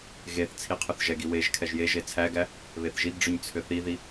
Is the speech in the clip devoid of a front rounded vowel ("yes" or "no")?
no